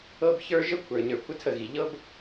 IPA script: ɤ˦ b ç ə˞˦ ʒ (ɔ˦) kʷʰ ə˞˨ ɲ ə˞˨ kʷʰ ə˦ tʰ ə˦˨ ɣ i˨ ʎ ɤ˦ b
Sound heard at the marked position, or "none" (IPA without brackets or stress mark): ə˦